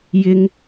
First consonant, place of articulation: palatal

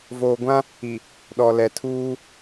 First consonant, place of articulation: labial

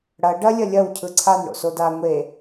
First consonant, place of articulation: retroflex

